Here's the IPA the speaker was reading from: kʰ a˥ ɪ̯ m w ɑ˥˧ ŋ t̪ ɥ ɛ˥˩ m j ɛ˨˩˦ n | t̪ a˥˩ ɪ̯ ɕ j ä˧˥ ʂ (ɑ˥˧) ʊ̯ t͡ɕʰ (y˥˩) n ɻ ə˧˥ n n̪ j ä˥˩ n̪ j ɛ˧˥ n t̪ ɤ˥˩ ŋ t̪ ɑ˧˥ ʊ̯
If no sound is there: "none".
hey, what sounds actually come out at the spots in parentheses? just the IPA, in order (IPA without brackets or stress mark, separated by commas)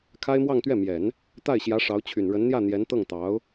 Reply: ɑ˧˥, y˨˩